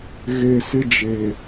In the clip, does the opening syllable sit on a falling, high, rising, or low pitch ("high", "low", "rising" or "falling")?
low